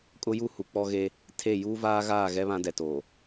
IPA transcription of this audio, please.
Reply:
kʼ ʊ˦ j u˦ h u˨ k͡p ɔ˦ ɣ e˦ | tʰ e˦˨ j uː˦ v aː˦ ɣ aː˦˨ ɣ ɛ˦ β ã˦ d ɛ˨ t oː˨

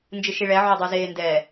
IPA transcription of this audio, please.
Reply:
n d͡ʒ ɯ ʃ i ɭ ɛ ʕ o dˤ u z eː n d ɛ

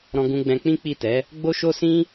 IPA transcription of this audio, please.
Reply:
ɾ ɔ̃˧ ɡ ũ˧ ɡ͡b ɛ̃˧ k͡p ĩ˦ k͡p i˦˨ t ɛ˨˦ | ɡ͡b o˦ ʃ o˦ s ĩ˦

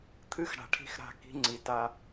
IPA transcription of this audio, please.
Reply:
t̪ʰ ɨ˦˨ x ɽ a̤˨ ʈʰ i̤˦˨ x ɾ a̤˦˨ k i̤˦ ŋ͡ǀ i˨ t a˦

